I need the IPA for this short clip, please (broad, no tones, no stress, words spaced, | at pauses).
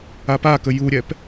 apakə juɾʲɛp